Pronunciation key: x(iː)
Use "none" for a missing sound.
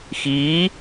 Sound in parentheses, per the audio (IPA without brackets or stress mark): iː